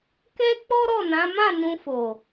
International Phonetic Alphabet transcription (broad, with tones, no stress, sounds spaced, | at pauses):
k ɛ˦ k͡p ɔ˦ ɾ ɔ˦˨ n ã˨˦ m ã˦˨ n ũ˧ f o˨